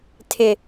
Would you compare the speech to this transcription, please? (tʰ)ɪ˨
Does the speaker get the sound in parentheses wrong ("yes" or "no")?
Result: no